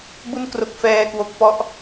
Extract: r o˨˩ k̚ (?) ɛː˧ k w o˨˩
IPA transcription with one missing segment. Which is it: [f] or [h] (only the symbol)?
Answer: f